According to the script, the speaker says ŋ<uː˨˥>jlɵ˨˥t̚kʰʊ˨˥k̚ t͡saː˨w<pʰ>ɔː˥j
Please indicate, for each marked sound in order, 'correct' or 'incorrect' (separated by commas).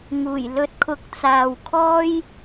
incorrect, incorrect